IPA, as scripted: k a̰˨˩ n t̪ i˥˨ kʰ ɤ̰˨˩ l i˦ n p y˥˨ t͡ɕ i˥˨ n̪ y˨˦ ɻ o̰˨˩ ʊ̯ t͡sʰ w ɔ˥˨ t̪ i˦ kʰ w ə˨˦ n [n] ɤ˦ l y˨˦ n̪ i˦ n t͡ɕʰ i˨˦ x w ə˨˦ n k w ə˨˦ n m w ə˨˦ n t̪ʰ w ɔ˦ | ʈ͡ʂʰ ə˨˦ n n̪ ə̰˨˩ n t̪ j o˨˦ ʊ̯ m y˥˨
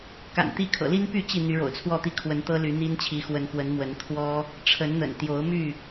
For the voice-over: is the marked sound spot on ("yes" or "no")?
no